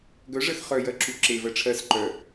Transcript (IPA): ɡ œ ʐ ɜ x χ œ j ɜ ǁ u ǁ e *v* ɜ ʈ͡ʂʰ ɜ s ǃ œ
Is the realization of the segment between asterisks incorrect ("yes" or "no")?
no